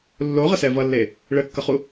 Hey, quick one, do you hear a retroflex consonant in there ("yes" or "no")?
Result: yes